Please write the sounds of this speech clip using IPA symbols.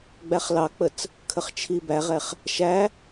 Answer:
ɡ͡bæχlɑk͡pət͡s | kʰəχt͡ʃʰibæʁɛχ | ʃæ

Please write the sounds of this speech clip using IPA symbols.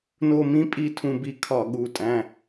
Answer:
no˦˨mĩ˦pʼi˦˨ tʰũ˦˨bi˦˨ kʰɒ˧˩˧ɠu˩˧˩tʼæ̃˩˧˩

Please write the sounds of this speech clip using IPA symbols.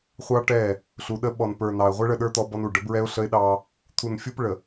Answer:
χʷɑ˦ʈɛ˦˨ | ɬu˨ɗə˦ ɓɔ˨npə˞˨nɑ˨ə̯ ʁʷɛ˦ɭə˦˨ɗə˞˦ t̪ɔ˦bɔ˦nu˨ ɖə˨˦bɹɛ˦ʊ̯ ɬə˦ɪ̯ɗɑ˦ | t̪ʰu˨nfʲu˦pɭə˨

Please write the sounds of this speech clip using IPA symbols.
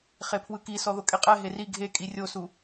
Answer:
χepʰwɯki sɔðokʼeqʼɛ ɦeri ɡʱe kʼirʲosu

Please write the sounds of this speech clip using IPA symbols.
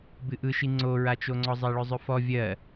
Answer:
bɨʔɯʃi ŋ͡ǀoɹat͡ʃoŋ͡ǀɔ zˤɜɭɵzˤɵfɔ vʲɜ

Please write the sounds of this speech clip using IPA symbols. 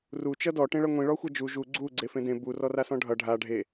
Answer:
ru t͡ʃʌdɔ ʈẽɭʌŋʷĩ ɭɔxʷʌd͡ʒu ʒu ɡ͡ǀu ɡ͡ǀefẽdẽ bu rɔrasɔ̃ɖʱʌ ɖʱa ɖʱe

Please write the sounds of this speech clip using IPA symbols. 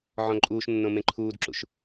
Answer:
ʕɔ̃ǃʼuːʃnːõ mẽǃʰuːdǁṵʃ

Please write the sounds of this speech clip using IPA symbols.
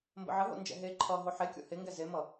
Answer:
mbə̰ʕəɦo̰nd͡ʒɛ̰ ɦe ǃʰʌ ɦoħekʲo̰ heŋɡɛ zemʌ

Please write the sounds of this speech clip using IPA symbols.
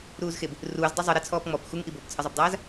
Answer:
ɾuːzxeb | ruːz dˤɐzˤɨ ɾet͡sʰɔːpŋ͡mɔp xuŋʔi bobt͡sʰɘzˤobdˤaːz

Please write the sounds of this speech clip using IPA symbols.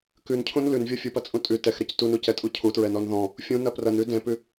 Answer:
kʉncʰũn lʉnvʲɔ fʲupɐt͡sʼũ tʼʉ tɛxɾɛc tunucɛtʼu cʰutɹɛnɔn ðɔ̃ | fʲũnɐ prɐnʉ dɛ̃pʉ

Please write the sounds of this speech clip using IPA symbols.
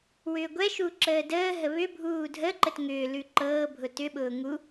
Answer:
wʏːɡʷɛ ʃuǁəːdəː ɦəβʏ bʱuːdʱəǃət ŋʏː lʉǃɤːbʱʊ tʏɓʊː ŋu

